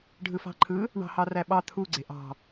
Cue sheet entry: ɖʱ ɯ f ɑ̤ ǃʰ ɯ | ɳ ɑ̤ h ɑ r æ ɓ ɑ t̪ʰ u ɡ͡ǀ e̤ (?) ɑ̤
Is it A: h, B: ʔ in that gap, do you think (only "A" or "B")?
B